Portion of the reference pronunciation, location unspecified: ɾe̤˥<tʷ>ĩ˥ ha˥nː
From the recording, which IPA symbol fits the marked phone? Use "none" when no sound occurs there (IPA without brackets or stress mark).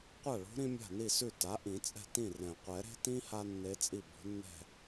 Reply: t